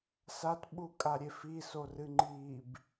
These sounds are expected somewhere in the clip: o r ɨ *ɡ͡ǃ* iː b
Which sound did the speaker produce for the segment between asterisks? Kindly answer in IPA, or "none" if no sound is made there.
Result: ŋ͡ǃ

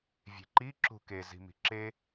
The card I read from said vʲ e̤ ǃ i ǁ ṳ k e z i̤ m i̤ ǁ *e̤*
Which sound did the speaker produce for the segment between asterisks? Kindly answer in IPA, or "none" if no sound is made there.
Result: e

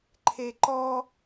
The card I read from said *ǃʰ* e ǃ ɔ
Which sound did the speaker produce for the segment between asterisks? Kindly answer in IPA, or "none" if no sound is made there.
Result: ǃʰ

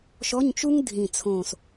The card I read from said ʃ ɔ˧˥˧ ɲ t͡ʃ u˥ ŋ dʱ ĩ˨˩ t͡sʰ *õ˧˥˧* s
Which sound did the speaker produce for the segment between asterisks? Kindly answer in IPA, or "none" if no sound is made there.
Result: õ˨˩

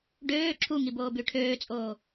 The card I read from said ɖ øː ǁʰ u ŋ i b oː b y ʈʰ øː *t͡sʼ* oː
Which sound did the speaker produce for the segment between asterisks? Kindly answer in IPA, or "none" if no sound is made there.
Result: t͡sʼ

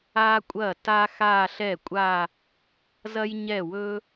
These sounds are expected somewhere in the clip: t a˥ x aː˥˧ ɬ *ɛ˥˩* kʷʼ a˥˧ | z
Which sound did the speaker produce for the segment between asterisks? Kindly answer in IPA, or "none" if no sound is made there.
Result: ɛ˥˩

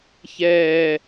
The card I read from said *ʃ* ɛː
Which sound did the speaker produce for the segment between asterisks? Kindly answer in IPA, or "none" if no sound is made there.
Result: ç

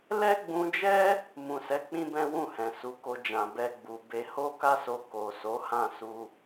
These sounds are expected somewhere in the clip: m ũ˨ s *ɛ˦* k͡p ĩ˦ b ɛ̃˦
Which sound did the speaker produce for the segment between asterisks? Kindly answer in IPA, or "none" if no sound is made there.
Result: ɛ˨˦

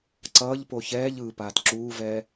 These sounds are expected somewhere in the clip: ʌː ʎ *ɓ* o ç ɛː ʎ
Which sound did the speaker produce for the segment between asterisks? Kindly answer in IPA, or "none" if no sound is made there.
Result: p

